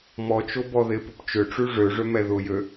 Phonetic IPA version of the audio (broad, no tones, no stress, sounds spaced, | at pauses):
m ɔ t͡ʃ o b ɔ ð ɪ p ʏ p t͡ʃ ʏ ʈ͡ʂ y ʐ ø ʐ ø m ɛ ð ʊ j ø